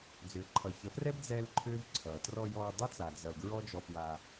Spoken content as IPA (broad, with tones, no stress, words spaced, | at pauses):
d͡zʏː˨ǃʰʌ˨çə˨˦frɛ˦b d͡zɛ˦lǃʰʏː˦vǀʰʌː˨ trɔ˧jɔː˧dˤʌ˦t͡sa˨ d͡zʌ˧l ɡɹɔ˦ d͡ʒɔ˧fwa˧